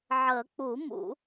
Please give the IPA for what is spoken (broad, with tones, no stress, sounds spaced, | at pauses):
ʕ ə˨˩˦ k͡p u˨˩˦ m ṵ˨˩˦